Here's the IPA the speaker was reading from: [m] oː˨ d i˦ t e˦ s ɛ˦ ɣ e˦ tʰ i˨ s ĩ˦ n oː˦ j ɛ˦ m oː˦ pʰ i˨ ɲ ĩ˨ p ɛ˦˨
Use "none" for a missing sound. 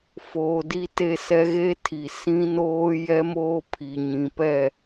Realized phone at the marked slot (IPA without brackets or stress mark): f